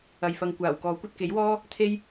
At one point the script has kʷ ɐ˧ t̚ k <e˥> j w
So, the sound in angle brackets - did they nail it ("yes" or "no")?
no